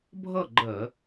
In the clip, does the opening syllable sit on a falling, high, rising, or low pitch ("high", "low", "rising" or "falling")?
falling